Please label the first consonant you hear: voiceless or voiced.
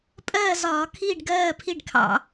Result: voiceless